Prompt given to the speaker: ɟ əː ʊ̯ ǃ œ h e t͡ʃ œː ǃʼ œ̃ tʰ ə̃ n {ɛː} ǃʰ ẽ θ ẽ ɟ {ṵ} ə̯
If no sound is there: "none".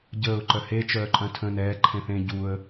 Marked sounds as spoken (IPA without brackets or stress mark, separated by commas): ɛː, u